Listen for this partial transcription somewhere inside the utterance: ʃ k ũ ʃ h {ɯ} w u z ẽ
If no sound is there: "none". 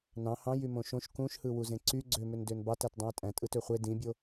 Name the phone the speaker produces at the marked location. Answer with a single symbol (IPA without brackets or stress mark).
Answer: ɯ